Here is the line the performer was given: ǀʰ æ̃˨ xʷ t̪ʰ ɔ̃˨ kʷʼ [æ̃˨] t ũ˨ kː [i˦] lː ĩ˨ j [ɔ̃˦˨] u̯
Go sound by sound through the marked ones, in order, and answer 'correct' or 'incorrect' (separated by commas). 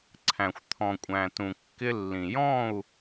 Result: correct, incorrect, correct